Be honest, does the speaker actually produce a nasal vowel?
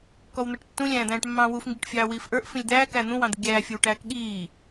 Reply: yes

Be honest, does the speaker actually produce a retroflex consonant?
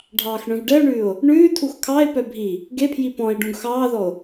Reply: yes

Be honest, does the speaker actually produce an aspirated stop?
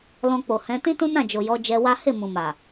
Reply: no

